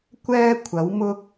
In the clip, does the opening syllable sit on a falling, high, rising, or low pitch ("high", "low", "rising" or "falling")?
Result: high